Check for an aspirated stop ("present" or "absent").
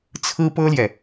present